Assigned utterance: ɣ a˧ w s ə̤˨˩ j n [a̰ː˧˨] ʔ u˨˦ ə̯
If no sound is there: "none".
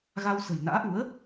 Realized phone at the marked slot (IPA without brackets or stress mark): a̰ː˧˥